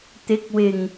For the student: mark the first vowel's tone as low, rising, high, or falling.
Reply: rising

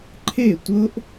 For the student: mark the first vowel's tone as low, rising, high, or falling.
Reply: falling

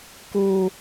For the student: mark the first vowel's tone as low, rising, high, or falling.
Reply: high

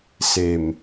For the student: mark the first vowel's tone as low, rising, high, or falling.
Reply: low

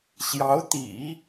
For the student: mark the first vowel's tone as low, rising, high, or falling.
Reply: rising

